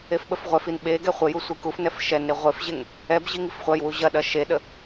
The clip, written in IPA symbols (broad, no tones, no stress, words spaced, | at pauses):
efɓəfʁʷɛfin ɓe ɡɛχʷəju sʷikufnɛf ʃɛnɾi ʁʷefʑeŋ | ɛb ʑiŋifχʷɐjwu ʑɐɗɐ ʃeɗə